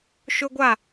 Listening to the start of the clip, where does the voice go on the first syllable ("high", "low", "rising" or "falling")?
high